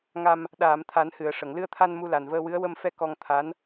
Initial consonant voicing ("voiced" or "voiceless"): voiced